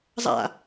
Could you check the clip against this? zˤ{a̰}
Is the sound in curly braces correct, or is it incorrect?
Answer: correct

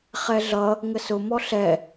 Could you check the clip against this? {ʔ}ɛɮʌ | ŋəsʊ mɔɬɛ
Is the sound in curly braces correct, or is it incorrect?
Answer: incorrect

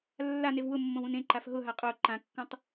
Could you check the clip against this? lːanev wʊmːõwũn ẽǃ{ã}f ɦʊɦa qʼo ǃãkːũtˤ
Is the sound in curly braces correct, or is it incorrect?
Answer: incorrect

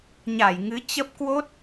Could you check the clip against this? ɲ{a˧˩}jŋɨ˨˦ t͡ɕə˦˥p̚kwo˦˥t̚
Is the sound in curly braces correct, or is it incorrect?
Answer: correct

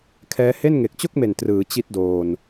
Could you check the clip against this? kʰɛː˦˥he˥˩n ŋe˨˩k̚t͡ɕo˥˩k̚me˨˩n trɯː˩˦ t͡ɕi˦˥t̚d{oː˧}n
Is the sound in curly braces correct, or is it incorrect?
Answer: correct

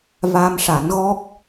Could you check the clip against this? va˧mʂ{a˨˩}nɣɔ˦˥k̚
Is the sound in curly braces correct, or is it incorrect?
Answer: incorrect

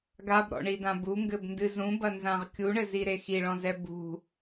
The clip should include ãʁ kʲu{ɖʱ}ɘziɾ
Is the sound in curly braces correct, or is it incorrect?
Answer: incorrect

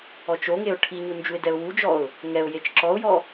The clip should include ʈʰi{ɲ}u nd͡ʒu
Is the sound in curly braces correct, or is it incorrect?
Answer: correct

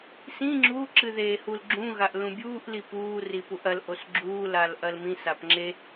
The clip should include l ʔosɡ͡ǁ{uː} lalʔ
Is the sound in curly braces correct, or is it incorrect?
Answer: correct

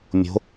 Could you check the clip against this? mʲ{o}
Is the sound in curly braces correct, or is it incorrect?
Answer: incorrect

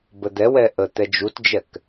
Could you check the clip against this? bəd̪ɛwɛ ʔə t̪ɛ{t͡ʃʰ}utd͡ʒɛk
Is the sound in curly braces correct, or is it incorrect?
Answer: incorrect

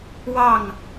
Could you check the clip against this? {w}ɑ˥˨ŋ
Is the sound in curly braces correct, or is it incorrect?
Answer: correct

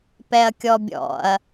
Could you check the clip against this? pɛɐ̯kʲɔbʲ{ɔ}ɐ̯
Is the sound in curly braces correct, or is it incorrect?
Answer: incorrect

